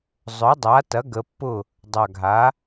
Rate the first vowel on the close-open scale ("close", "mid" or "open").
mid